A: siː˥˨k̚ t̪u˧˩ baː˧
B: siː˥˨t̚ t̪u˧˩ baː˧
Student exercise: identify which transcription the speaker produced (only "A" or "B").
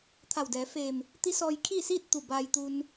B